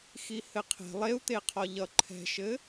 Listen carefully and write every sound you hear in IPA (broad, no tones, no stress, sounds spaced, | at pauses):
x i h ɘ qʰ ɛ̤ lˠ e u̯ t̪ e qʰ ɒ ʎ ʌ ǃʰ ɛ̤ ʃ ɘ